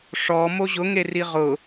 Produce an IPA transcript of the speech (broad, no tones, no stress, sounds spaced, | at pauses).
ʂ ɔ m o ʑ ʊ ŋ e r i ʁ ʊ